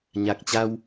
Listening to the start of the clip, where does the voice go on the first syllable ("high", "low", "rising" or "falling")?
low